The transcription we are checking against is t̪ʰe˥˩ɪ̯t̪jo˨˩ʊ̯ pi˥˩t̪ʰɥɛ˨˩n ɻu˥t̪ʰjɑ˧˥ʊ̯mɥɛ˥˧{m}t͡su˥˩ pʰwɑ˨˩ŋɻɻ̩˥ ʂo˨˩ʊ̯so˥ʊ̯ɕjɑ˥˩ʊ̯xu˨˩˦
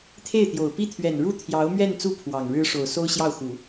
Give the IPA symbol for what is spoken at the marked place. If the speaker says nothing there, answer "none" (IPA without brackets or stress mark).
n